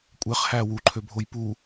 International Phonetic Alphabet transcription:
kʷʼ e χ h æ w u ǃʰ ø bʱ o j p u

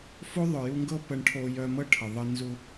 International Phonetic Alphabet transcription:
f o˦ ðˤ œ˨ j u˧ ŋ ɡ ɤ˦ p ə˧ ɳ ʈʰ o˧ j œ˧ m ɤ˦ ʈʰ ə˨ ðˤ ə˧ n z u˧

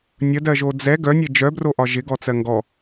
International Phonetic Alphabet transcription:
nʲ ə d ɜ ʒ o d͡z ɛ ɡ œ nʲ e d͡ʒ œ b r o ʔ ɒ ʒ ɪ ɡ ɔ t͡s ɜ ŋ ɡ ɔ

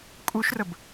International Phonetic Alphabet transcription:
kʼ u ʃ r ə b

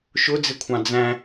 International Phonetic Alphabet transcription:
ʃ ʊ d͡z ɪ kʷʰ ɑ̃ d͡z æ̃

